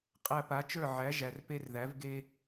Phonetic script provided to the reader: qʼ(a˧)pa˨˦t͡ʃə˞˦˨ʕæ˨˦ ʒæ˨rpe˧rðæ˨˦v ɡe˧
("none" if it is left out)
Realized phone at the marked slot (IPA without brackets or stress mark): æ˧